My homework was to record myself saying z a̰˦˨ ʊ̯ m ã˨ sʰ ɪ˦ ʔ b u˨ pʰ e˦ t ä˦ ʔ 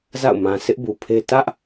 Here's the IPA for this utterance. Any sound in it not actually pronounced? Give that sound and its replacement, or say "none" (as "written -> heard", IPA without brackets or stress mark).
none